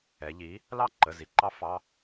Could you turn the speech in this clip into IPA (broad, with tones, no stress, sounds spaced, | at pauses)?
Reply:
ɛ˩˧ ʎ i˩˥ | l ɑ˥˨ ǃ ə˩˧˩ z i˩ ǃ ɑ˧˥ f ɑ˩˧˩